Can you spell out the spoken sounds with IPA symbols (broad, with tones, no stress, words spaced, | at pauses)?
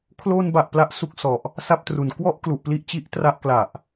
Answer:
kʰlo˧nba˨˩ʔ pla˦˥ʔsu˦˥k̚sɔ˨˩ʔ | sa˥˩p̚tru˨˩n kwɔ˥˩ʔ klu˨˩ʔ pli˥˩ʔ t͡ɕi˦˥ʔtra˦˥ʔ kla˨˩ʔ